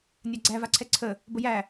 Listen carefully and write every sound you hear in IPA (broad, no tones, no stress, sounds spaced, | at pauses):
nʲ a ɡ͡ǀ æ v a ǀʰ ɛ ǀʰ ə | b ə j æ